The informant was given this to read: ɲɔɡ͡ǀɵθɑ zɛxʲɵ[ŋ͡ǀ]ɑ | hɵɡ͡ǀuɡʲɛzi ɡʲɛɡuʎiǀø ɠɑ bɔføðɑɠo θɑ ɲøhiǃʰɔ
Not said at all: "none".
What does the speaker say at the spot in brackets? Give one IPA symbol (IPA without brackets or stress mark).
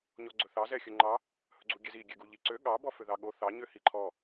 ŋ͡ǃ